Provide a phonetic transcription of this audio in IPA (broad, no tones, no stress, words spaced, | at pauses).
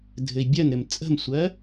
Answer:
dʱɘi̯bʲɜnɾɘm t͡sʼə̤msʷɜ